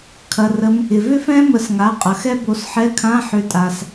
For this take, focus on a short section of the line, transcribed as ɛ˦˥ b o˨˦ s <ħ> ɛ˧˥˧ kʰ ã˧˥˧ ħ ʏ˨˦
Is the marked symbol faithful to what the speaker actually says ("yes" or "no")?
yes